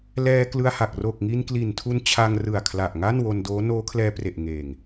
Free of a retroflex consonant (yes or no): yes